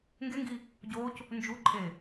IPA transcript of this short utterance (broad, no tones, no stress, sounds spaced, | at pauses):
ŋ ɡ e ŋ ɡ i | ɟ o c | n d͡ʒ u ǃʼ e